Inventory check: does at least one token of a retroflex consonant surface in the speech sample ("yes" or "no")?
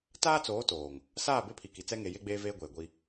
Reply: no